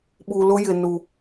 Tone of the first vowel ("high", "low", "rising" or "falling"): low